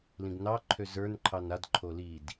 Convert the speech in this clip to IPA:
l ĩ ɡ n ɑ ǃʰ ø z ə˞ n ǃʰ ɑ n a d ǃʰ o l i d

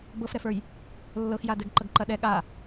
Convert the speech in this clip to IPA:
b ɤ f ɾ ɛ f ə˞ j | lː ɤ x j a d ɛ ɡ ǃ ɐ ɡ ǃ ɐ ɗ ɛ ɠ a

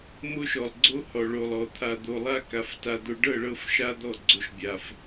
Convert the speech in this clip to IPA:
m o˦ ʃ ɔ˨ lˠ ɡ͡ǀ o˦ h ɔ˨ ɭ o˨ lˠ ɔ˨ t̪ʰ a˨ d̪ o˨ lˠ a˦ k a˨ f t a˨ d̪ o˨ ɖ ɤ˦˨ ɭ ɤ˦˨ f ʃ a˦ d̪ ɔ˦˨ ɡ͡ǀ o˨ ʃ bʲ a˨ f

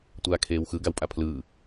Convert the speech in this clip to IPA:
tʷ aː kʰ eː w x ɯ ɡ a w pʼ a pʰ l ɯː

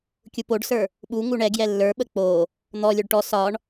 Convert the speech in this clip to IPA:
kʲ u p o ɖ s ə˞ | ɓ u ŋ u ɳ ɛ ɡ j ɛ lː ə˞ ɓ ə k͡p o | n̪ ɔ lʲ o ɖ ʈ ɔ s ɒ ɳ

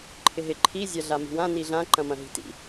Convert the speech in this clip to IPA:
ǃʰ ɪ ɦ ɪ ǃʰ i zʲ a ɮ a m i̤ w ã n i ɮ ã ǃ ɐ̃ m ɐ̃ ɦ i̤ t ḭ

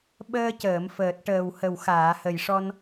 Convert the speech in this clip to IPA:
ɓ əː˧ c əː˨˩˨ m f əː˨˩ t̚ ʈ əː˨˩ w h ə˨˩ w x aː˨˩˨ h ə˨˩ j ʂ ɔ˧ n

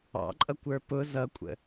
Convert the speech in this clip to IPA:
ɑ̰ ǃʼ ʌ kʷ ə˞ p ʊ z ʌ kʷʼ ə̰

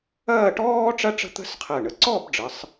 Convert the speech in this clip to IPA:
ɐː˥˧ ʈ ɔː˥ ʈ͡ʂ ɐ˥ ʈ͡ʂ ə̤˥ t̪ ə̤˥ s qʰ ɜ˧˩ ɳ ə˧ ǀ ɔ˥˧ b ɖ͡ʐ ə˩˧ sˤ

